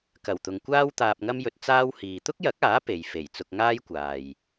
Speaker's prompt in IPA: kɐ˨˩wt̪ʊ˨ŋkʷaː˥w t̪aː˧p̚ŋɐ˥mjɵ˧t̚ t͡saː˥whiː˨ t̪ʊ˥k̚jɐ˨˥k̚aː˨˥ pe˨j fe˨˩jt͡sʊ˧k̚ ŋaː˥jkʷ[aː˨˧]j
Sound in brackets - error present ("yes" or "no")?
yes